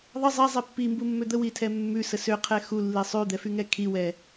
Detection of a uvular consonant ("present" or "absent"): present